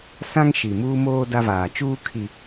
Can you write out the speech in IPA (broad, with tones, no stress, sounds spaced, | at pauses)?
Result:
s ã˦ ŋ ʃ i˨ m uː˦ m oː˦ d a˦ v aː˨ t͡ʃ uː˦ kʰ i˨